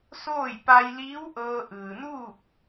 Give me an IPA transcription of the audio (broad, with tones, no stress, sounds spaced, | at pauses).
s oː˥˨ j p a˧ j l iː˧˥ w ʔ ɤː˧ ʔ ɯː˩ n uː˥˨ k̚